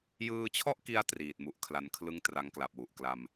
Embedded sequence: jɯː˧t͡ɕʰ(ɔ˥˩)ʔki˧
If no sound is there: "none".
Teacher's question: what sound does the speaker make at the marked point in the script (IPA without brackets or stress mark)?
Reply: ɔ˥˩